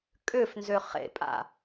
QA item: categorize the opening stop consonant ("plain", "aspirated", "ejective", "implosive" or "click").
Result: ejective